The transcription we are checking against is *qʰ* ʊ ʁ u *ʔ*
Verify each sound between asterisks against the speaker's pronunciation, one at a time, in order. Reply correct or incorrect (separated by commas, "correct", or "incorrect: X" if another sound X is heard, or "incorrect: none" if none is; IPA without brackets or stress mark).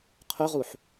correct, incorrect: ħ